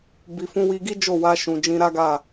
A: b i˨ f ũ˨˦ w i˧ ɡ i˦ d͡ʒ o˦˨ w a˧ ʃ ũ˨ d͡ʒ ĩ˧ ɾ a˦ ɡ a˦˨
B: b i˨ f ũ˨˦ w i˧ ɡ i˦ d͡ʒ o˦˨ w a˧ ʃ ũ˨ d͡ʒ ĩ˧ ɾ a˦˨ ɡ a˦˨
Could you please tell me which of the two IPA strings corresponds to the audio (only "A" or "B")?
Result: A